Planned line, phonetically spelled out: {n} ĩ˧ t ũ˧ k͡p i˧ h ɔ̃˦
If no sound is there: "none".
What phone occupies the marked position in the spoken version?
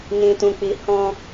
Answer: n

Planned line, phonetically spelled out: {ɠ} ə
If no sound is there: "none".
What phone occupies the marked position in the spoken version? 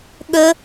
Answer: ɠ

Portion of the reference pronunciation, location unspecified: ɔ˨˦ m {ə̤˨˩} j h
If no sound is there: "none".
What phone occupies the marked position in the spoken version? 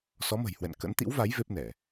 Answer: ə̤˨˩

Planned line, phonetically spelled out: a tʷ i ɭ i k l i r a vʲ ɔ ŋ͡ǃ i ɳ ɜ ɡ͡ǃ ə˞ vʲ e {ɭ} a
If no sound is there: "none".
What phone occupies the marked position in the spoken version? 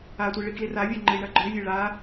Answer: ɭ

